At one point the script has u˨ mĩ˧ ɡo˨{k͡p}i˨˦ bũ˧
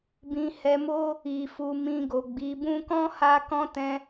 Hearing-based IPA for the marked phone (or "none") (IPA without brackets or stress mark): ɡ͡b